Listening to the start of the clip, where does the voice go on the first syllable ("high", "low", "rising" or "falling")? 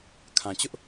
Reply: low